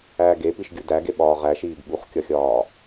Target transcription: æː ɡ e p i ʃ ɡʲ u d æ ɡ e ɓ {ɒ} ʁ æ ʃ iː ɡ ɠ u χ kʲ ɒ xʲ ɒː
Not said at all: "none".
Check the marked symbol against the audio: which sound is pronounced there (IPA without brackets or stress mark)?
ɒː